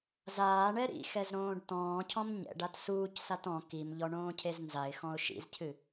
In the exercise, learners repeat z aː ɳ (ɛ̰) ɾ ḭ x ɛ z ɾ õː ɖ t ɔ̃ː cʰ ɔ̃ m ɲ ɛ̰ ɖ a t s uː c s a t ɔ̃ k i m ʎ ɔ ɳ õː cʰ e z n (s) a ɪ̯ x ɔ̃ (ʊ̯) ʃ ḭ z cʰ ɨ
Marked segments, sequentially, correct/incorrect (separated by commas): incorrect, incorrect, correct